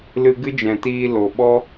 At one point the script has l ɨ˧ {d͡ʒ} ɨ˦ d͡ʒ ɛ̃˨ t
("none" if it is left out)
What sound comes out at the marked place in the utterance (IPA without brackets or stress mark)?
ɡ